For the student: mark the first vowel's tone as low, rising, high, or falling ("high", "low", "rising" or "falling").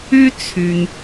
high